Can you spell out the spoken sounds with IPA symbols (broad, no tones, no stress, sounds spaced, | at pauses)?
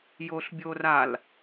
j o ɬ bʲ o r a l